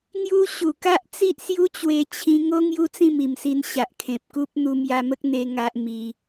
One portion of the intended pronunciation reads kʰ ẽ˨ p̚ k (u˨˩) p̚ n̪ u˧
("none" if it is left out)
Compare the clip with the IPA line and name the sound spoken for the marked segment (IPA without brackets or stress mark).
u˦